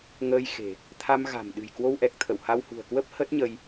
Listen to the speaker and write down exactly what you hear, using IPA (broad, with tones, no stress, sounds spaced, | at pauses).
ŋ əː˧ j x e̤˨˩ | t̪ʰ a˧ m ɣ a̤˨˩ m ɗ ɨ̤˨˩ j k w o˧ w ʔ ɛ˨˩ k̚ t̪ʰ ə̰˧˨ w h a˧ w h ṳ˨˩ ə̯ k w ə˦˥ p̚ h ə˦˥ t̚ ɲ ə˧ j